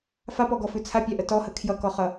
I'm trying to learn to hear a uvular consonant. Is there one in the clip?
yes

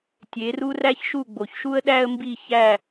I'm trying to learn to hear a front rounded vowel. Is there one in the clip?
no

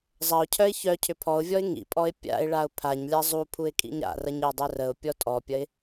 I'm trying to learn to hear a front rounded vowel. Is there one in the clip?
yes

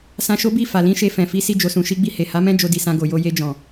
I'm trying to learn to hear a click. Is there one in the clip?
no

